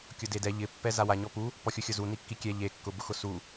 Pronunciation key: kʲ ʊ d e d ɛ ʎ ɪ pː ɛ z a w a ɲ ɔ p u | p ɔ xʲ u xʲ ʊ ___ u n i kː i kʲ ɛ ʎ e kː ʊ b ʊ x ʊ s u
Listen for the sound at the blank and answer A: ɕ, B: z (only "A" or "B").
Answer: B